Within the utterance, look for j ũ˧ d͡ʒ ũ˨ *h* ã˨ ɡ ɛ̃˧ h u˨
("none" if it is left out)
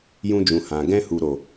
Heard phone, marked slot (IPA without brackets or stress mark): h